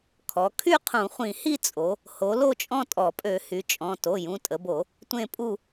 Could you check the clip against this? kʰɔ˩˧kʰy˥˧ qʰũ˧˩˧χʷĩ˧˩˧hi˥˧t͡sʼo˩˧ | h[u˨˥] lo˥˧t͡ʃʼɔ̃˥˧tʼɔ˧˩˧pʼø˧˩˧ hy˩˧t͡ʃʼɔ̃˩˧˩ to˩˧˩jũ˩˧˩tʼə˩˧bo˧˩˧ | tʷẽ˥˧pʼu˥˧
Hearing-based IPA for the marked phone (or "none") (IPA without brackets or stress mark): o˨˥